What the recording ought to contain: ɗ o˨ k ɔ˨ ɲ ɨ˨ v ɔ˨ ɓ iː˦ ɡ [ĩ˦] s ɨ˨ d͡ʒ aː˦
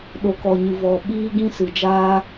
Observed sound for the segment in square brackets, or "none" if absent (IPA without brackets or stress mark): ĩ˦